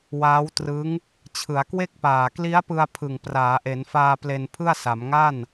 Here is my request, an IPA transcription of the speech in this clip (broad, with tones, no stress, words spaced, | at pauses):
waː˦˥wtrɯ˦˥ŋ | t͡ɕʰɯ˩˦a̯kwe˥˩k̚paː˨˩ kli˦˥a̯pɯ˧a̯ pʰɯ˨˩ŋ praː˩˦ʔe˩˦nfaː˧ ple˧npʰɯ˥˩a̯sa˩˦m ŋa˥˩n